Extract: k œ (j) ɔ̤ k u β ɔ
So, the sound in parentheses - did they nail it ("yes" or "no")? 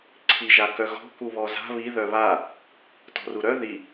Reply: no